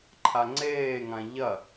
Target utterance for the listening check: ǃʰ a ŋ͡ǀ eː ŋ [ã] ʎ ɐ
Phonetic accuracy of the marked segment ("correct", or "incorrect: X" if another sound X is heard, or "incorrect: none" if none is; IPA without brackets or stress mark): correct